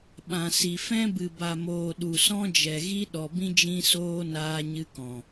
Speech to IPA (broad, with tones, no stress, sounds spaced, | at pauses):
ɓ ã˨ s i˨ f ɛ̃˦ b ɨ˨ b a˨ m oː˨ ɗ u˨ s ɔ̃˦ d͡ʒ ɛ˨ ɣ i˦ ɗ ɔ˨ b ĩ˦ d͡ʒ ĩ˧ s oː˧ n aː˧ ɲ ɨ˧ k ɔ̃˨